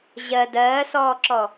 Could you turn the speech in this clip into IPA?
ʑ ɜ d ɜː s ɔː ǁ ɔ

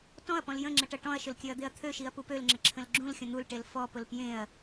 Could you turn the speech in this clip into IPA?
t ɔ̃ ɐ̯ p ɔ̃ l j ə̃ ŋ͡ǁ ə ʈ ɐ ʈ ɔ̃ ɐ̯ ʃ ʊ l kʲ ø ɐ̯ d̪ e ɐ̯ t̪ʰ ø ʃ i ɐ̯ p u p ø l ŋ͡ǁ ə ǁʰ ə̃ l ɡ͡ǁ ũ l xʲ ə̃ n̪ u l ʈ e l f ɔ p ʊ l p j ẽ ɐ̯

